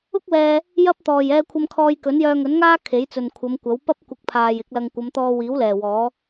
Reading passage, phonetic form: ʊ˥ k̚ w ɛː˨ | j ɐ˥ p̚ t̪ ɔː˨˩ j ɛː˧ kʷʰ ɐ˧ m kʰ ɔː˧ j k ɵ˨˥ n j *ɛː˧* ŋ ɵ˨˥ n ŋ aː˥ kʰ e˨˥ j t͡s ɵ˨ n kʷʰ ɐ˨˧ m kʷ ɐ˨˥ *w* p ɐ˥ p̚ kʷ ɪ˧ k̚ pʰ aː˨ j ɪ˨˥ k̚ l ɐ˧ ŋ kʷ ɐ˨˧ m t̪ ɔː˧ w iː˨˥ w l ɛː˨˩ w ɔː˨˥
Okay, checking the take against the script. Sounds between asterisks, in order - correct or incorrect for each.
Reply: incorrect, correct

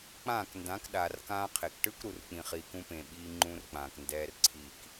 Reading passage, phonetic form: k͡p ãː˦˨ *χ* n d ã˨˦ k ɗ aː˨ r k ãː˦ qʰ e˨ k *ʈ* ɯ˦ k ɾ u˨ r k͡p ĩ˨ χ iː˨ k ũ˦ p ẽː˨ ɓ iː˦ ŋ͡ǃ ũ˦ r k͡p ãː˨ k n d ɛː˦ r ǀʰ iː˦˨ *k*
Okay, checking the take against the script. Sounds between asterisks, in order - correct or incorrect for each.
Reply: incorrect, correct, correct

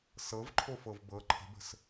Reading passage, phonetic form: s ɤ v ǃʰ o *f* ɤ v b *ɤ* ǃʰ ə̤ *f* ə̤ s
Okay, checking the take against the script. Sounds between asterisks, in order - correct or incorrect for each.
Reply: correct, correct, incorrect

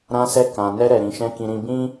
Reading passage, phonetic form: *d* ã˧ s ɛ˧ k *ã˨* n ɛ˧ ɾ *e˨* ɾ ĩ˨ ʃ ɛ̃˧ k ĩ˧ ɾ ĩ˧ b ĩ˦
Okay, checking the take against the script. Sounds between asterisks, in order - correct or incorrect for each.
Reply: incorrect, correct, incorrect

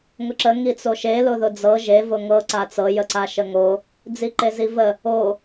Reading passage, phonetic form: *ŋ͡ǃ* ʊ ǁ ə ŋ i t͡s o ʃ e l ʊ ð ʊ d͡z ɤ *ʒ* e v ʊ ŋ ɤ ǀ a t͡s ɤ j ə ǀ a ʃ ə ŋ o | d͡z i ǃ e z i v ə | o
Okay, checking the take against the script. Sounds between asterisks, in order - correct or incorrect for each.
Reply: incorrect, correct

